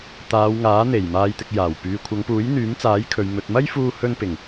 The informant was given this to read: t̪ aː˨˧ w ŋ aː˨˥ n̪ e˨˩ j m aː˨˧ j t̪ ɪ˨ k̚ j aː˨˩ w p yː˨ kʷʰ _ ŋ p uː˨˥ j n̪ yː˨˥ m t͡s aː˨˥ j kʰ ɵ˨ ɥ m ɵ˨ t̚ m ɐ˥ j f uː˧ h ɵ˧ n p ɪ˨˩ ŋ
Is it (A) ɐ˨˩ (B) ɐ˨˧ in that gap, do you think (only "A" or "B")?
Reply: B